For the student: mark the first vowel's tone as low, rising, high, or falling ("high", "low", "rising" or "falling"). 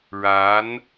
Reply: rising